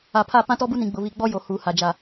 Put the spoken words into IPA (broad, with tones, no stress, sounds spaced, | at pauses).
a˨ pʰ a˦˨ p ã˦ t ɔ˦ b u˦ n ĩ˨ ɡ͡b ʊ˨ β i˨ ɡ͡b ɔ˦ j o˨ h uː˨ h a˨ d͡ʒ a˨